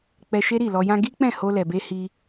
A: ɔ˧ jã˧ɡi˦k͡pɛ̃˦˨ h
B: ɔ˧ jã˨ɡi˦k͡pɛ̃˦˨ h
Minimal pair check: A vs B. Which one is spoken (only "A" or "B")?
A